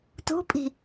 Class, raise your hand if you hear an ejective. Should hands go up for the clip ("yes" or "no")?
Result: yes